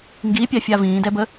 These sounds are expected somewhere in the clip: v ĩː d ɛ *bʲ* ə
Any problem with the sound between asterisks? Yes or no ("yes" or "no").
yes